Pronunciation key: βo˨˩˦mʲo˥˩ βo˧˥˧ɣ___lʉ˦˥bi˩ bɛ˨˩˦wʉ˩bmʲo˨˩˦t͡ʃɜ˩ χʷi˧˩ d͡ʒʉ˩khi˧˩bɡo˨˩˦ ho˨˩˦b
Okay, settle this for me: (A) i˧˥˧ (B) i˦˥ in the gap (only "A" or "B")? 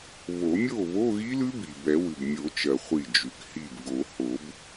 B